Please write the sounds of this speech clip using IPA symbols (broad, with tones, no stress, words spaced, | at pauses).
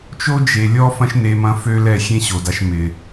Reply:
t͡ʃo˦d͡ʒe˨ lʲɔ˦fɐ̃˦ʃne˧ mɐ̃˦fø˦lɛ˦˨ xʲẽ˦ɕo˨da˧ʃ mɪ˨